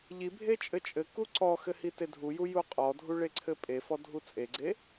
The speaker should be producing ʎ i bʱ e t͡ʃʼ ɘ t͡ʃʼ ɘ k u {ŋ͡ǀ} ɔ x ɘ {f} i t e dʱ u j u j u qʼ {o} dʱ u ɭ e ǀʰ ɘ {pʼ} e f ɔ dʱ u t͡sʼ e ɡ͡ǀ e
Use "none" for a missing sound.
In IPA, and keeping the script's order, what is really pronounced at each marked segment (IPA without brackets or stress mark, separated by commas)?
ǀ, h, ɔ, pʼ